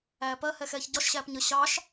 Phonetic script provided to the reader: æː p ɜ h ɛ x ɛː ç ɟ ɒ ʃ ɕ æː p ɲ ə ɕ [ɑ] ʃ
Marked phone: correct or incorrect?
correct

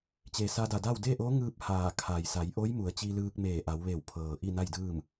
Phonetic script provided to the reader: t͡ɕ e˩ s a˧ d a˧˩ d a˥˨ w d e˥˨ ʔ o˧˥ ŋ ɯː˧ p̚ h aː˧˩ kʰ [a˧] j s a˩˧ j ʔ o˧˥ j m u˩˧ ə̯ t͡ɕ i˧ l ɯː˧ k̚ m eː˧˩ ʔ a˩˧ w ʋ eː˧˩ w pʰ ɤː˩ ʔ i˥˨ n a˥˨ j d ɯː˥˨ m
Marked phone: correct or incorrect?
incorrect: a˩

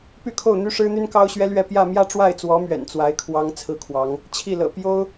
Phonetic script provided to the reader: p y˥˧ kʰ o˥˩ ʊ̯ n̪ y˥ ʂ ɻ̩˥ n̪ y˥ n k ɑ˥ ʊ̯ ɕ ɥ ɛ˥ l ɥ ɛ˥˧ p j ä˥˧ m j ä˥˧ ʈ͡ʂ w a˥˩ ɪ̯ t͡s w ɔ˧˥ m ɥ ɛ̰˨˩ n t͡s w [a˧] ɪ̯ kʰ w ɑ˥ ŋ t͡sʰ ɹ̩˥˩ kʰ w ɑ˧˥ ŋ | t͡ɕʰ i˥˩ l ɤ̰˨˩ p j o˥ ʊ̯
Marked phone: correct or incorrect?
incorrect: a˧˥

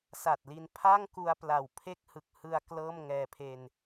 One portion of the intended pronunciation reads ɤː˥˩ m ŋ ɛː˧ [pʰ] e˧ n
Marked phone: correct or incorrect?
correct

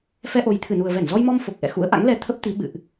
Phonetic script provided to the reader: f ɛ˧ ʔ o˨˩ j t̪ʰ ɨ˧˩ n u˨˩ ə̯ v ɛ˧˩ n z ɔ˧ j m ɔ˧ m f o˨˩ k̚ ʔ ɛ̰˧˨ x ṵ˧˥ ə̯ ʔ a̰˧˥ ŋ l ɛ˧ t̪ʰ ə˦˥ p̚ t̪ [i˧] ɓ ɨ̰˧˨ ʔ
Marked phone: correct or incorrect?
incorrect: i˨˦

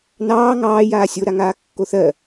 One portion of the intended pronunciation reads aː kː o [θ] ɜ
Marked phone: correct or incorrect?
correct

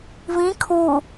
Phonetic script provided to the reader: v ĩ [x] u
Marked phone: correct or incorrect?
incorrect: kʰ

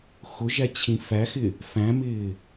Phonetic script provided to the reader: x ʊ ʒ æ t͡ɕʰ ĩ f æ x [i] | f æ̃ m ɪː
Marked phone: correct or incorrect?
incorrect: ɪ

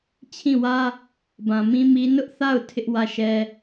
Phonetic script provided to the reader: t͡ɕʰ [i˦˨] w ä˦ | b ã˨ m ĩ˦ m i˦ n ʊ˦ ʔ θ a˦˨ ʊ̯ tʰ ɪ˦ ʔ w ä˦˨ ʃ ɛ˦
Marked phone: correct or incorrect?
incorrect: ĩ˦˨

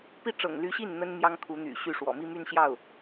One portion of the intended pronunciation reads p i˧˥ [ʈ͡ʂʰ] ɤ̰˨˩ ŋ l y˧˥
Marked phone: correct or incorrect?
incorrect: ʈ͡ʂ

